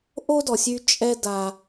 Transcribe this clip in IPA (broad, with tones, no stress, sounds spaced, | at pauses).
ʔ o˥ d ɔ˩ sʲ y˧ t͡ʃʼ ɛ˧ d a˩